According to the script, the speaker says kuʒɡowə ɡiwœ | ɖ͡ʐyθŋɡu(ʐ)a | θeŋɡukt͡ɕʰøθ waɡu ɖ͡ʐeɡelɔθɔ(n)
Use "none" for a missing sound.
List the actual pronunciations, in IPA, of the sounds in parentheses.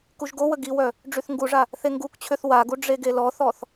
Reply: ʐ, θ

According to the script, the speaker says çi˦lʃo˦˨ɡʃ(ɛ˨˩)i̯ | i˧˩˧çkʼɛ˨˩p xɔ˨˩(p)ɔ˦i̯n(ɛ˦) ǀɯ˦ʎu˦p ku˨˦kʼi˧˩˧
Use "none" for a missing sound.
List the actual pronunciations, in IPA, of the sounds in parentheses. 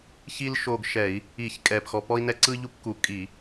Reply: ɛ˧˩˧, p, ɛ˦

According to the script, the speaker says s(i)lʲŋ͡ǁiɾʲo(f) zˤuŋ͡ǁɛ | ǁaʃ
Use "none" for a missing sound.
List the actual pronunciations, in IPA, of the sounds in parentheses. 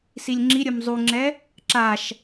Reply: i, m

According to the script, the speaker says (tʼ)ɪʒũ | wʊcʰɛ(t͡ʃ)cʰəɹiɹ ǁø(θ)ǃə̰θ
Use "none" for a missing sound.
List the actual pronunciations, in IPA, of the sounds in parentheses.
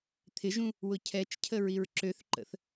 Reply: t̪ʰ, t͡ʃ, θ

